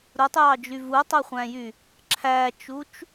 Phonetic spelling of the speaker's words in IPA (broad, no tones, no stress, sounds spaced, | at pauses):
ɾ u tˤ j ɑ d͡ʒ y v u tˤ ø χʷ æ̃ j y | ǁʰ æ t͡ʃ u t͡ʃ